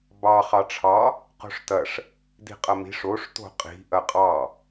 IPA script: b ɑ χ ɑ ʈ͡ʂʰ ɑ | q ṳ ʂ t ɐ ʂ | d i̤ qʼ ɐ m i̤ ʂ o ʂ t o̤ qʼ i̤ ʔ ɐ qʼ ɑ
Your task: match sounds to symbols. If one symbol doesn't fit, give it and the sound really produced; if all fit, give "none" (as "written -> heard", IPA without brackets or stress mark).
ṳ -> o̤